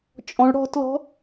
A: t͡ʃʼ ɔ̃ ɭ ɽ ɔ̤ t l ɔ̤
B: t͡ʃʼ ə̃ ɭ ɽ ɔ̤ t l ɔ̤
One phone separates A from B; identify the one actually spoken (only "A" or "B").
A